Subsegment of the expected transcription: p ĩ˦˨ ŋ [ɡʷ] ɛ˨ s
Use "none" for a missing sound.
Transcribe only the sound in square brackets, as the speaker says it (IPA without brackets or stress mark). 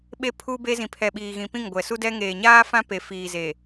ɡʷ